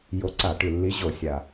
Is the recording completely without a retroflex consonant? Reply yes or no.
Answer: no